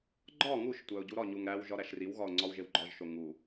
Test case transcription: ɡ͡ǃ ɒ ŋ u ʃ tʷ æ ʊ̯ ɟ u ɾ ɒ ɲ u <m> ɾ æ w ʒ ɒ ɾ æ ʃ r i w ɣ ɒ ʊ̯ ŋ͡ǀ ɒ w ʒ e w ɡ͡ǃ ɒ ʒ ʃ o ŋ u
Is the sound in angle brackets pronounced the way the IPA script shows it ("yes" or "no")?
no